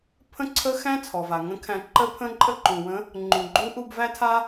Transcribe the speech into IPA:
pʰə̃˥ǀʰə˥ xæ̃˥t͡sʰɔ˩va˩ ŋə̃˧˥kʰæ̃˧ ǃə˥pʰə̃˥ ǃʼə˥ǃũ˩wə̃˧˥ | ŋ͡ǃũ˩ɡ͡ǃu˧˥ʔu˧b væ˥tʰa˥

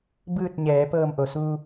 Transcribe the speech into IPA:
bɯː˥˨t̚ɲɛː˩˧ pɤː˧˩mʔo˩suː˧

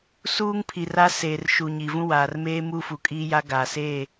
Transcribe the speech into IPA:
suː˦ŋpʰi˨ra˦ seː˨rʃu˨ ɲi˨vũ˦waː˨r meː˦ mu˦fu˨kʼiː˦ja˦ ɡa˨seː˦˨

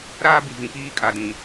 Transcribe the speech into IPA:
ɾaː˦bi˨vĩ˨ piː˦ kʼa˨dĩ˨

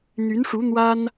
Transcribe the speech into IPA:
n̪y˧˥nʂu˧˥ n̪wa˥n

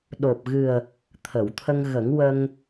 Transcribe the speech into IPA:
ɗo˨˩p̚ɣɨ˨˩ə̯ | t̪ʰə˨˩˨wt̪ʰə˧ŋɣə˨˩˦ŋ wə˧ŋ

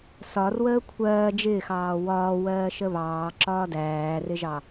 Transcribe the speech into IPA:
sɒrwəː kʷʰɜː d͡ʒɪːxɑː wɒːwɜːʃə βɑːǁɒː dæːrɪʒɑ

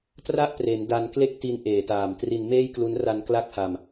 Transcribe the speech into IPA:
tra˥˩ʔpre˩˦n da˧n kle˥˩k̚ti˧n ʔeː˨˩taː˨˩m tri˧nmeː˥˩jklu˦˥n ra˧nkla˦˥k̚ha˧m

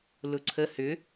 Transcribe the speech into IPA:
lʊǀʰə hʏ

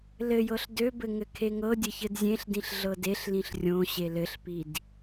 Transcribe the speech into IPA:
lɘjɤɬ døbɘ ŋɘkʰeŋɤdʲɘ çɘdzʲẽɬdĩɬ ɮɤdeɬlĩɬ rʲõ ɕelɘɬpid

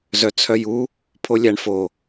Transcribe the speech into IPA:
zœt͡sʰœju | pʰolʲæɳfo

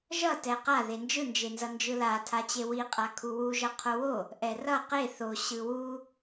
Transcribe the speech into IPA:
ʒʌ tɛqa ðend͡ʒɯnd͡ʒenzʌ nd͡ʒɯlatʰat͡ɕe wiqʼa kʰuwuʒʌ qʰowo | ʔɛrʌ qe θo ɕɯwu

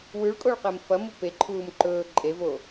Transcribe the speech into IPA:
wʉɭkʼoɭqem fɐmu peǃʰuːm ǃɵː ǃʼevo

